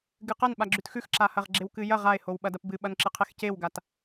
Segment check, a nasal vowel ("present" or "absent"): absent